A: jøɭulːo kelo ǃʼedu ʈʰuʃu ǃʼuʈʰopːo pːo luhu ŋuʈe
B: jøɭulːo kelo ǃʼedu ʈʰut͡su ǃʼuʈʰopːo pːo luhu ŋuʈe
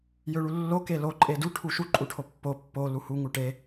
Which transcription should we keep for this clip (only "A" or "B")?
A